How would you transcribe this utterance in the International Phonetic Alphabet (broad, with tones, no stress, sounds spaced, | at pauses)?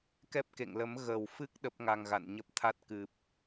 k ɛ˦˥ p̚ k ḛ˧˨ ŋ l ə˨˦ m ɣ ə˨˩ w f ɨ˦˥ k̚ ɗ ə˦˥ p̚ ŋ a˧ ŋ ɣ a̰˧˨ n ɲ ə˦˥ p̚ t̪ʰ a˦˥ t̚ k ɨ˨˩ p̚